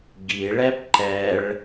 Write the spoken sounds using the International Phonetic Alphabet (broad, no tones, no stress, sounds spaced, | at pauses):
ɡ i ɭ ɛ p ǃ ɛ ɭ